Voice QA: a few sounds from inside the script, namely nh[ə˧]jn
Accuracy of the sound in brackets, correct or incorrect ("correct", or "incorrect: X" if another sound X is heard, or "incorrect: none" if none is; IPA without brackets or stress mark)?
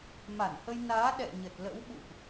correct